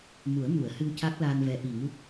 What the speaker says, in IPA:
mu˨˩˦ə̯mu˨˩˨ə̯hɨ˧w ca˦˥k̚laː˧nvɛ˧˥ ʔi˨˩ŋu˦˥k̚

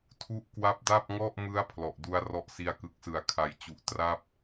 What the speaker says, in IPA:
tʰu˥˩ʔ kwa˦˥p̚da˥˩p̚ŋɔ˥˩ʔmɯ˦˥a̯ pʰlɔ˨˩ʔdu˦˥a̯ rɔ˦˥ʔsi˧a̯kɯ˨˩k̚sɯ˩˦a̯ kʰa˩˦jt͡ɕu˨˩ʔ tra˥˩p̚

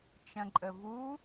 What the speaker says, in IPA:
t͡ʃɐ̃ǃʼəvu

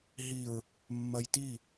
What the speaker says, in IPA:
ɦiɹ | mːɐjti

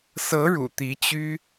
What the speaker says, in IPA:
sɤ˧˥ɻṵ˨˩ t̪i˧˥t͡ɕy˥

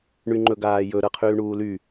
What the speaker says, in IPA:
ɳyŋ͡ǃɵɡaːjɵ ɾɤqʰyːɳuːly

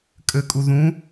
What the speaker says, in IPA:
kʼɘkʼu ðũ

